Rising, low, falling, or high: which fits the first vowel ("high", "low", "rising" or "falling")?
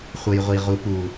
low